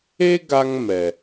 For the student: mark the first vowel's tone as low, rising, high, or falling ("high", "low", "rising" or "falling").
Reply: high